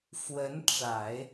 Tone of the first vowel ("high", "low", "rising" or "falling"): rising